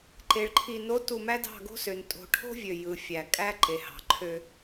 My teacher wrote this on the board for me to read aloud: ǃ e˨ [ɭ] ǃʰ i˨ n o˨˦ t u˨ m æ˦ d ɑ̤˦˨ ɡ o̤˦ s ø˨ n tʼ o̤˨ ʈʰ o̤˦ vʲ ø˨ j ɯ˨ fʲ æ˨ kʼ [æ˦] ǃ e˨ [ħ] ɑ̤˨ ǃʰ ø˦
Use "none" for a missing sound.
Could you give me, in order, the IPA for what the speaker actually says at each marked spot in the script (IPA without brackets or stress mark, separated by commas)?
ɭ, æ˦, h